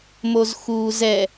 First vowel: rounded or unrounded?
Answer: rounded